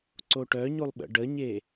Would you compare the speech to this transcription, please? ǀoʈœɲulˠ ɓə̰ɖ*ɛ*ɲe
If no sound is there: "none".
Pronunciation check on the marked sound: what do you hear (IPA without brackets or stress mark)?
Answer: ə